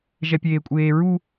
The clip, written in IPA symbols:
ʒ ɛ pʲ eː kʷʼ eː ɹ u

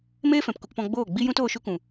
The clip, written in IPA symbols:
m eː˦ f ɛ̃˨ p k u˧ k p ɔ̃˧ ɡ͡b oː˦˨ ɡ͡b i˦ j ũ˦ t oː˧ ʃ u˧ k ũ˨

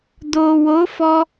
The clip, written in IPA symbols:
d o˨ w o˨˦ f ɔ˧

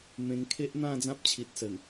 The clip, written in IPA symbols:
m ẽ˧ ŋ kʰ e˦ ʔ n̪ ã˥˧ d͡z ã˦ p̚ t͡ɕʰ i˨ t̚ s ə˨˩ n

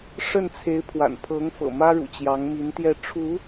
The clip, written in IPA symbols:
ʂ ə˥˩ n t͡sʰ e˧˥ ɪ̯ pʰ w a̰˨˩ n pʰ ɤ˧˥ ŋ f ɤ̰˨˩ m ä˥ ɻ ṵ˨˩ t͡ɕ j ɑ˧˥ ŋ m i˧˥ n t̪ j ɛ˥˩ ʈ͡ʂʰ u˧˥

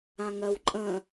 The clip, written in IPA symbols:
ã ŋ ɜ w ǃʼ ə̃

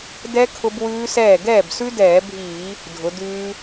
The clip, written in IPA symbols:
d ɛ˦˥ kʰ ʊ˦˥ b w ʉː˦˥ s ɛː˥˩ ɡ ɛː˥˩ b s ʉ˦˥ d ɛː˧˩˧ bʱ iː˧˩˧ | dʱ ʊ˩˥ d ʉː˦˥

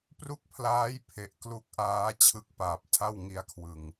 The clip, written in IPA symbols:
p r u˥˩ k̚ pʰ l aː˦˥ j pʰ e˨˩ ʔ k l u˦˥ k̚ ʔ aː˦˥ t͡ɕʰ ɯ˦˥ k̚ p aː˨˩ p̚ tʰ a˥˩ w ŋ i˦˥ a̯ kʰ w ɯ˨˩ ŋ

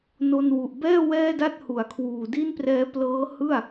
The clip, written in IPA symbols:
n o˧ n w u˨˩ ʔ b ɛː˥˩ w ɛː˥˩ d a˥˩ t̚ h u˩˦ a̯ kʰ w uː˨˩ d i˥˩ n p r ɛː˦˥ p l ɤː˦˥ h ɯ˥˩ a̯

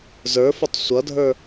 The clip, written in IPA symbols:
z ə˞ f o tˤ sʷ ʌ dʱ ə˞

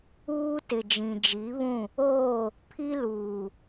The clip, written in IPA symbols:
uː˦ t ɪ˨ d͡ʒ ĩ˨ d͡ʒ i˨˦ β ũ˦˨ | oː˦˨ | pʰ i˦ l uː˨

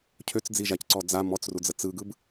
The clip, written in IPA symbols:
cʰ ø t͡s d͡z i ʒ a c ǀ ɔ d͡z a m ɔ t͡s r u d͡z ə t͡s ɯ ɡ ɯ b

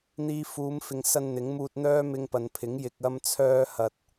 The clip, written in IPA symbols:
n̪ iː˧ f uː˨˧ m f ɪ˨ ŋ s ɐ˧ n n̪ ɪ˨˥ ŋ m uː˧ t̚ n̪ œː˥ m ɪ˧ ŋ p ɐ˨ n pʰ ɪ˨˥ ŋ j ɪ˧ k̚ ɐ˥ m t͡sʰ œː˥ h ɐ˨ t̚

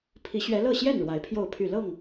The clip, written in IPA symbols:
pʰ i˨˦ ɕ ɥ ɛ˨˦ l ɤ˥˨ ɕ j ɛ˥˨ n ɻ w a˨˦ ɪ̯ pʰ j o˥˨ ʊ̯ pʰ y˥˨ l ɤ˥˨ ŋ

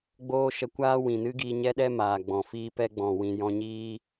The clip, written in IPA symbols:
ɡ͡b oː˦ ʃ ə˧ kʷ aː˦ w ĩ˨ n ɨ˦ ɡ iː˧ ɲ ɛ˦ ɗ ɛ˦ m aː˨ ɡ͡b ɔ̃˨ f iː˧ p ɛ˧ ɡ͡b ɔ̃˨ w ĩ˨ j ɔ̃˧ ɲ iː˦

